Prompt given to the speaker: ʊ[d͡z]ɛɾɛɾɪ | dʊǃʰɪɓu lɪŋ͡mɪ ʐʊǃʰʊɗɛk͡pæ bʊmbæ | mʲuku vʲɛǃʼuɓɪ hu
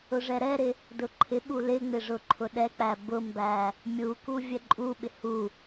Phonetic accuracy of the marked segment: incorrect: ʐ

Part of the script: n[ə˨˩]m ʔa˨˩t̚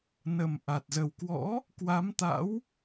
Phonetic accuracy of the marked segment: correct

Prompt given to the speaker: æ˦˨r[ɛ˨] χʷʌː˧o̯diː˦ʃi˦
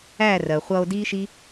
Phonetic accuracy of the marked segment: incorrect: ɜ˨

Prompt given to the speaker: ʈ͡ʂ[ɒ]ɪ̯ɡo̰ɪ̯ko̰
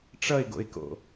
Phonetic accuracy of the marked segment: incorrect: ʌ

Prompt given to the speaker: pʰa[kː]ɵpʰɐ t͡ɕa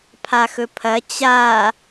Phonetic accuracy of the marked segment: incorrect: x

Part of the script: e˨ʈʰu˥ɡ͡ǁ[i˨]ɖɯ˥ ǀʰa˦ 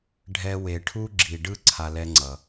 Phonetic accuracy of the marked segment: correct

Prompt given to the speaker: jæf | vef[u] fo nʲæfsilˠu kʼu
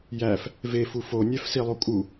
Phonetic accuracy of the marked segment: correct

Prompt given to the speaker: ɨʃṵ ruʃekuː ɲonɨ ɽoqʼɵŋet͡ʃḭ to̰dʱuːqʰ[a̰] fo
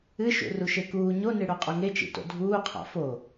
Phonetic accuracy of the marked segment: correct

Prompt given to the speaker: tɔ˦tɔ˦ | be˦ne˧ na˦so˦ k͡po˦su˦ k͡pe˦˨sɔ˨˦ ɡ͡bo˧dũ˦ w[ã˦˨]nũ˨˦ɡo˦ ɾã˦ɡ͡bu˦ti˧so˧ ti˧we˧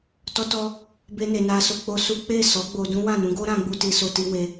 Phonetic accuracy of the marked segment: correct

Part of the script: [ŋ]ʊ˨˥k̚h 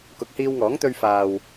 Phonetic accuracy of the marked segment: incorrect: k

